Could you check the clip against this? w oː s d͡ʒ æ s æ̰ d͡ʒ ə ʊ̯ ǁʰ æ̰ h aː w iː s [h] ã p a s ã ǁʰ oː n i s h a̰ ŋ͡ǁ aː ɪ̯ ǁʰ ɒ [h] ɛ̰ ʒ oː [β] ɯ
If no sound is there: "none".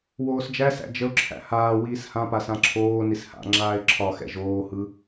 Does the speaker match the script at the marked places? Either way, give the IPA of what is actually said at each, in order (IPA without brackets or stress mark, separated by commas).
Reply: h, x, h